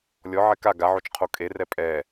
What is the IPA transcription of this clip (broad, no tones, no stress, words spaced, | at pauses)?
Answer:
lʲɔʕɛ ka ɡaʕot͡ʃ qʰokʼerɛ pʼɛ